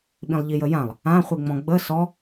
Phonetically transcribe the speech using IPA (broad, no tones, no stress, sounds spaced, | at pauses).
ɓ ĩ lˠ ʎ i j ə j ã lˠ | ã χʷ i ŋ͡m ɔ̃ ɡ͡b ə s ɔ